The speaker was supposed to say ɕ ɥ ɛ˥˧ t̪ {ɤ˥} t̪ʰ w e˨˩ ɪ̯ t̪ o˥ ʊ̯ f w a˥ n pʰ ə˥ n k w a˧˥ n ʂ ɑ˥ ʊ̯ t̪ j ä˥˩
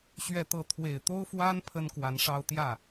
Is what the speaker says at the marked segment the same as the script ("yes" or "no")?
no